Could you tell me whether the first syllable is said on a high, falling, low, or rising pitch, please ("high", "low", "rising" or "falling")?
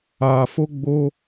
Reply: low